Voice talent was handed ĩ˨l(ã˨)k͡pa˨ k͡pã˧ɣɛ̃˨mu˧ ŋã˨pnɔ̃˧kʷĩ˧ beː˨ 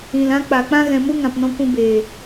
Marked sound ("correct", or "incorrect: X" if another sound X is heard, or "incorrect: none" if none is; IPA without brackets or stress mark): incorrect: ã˦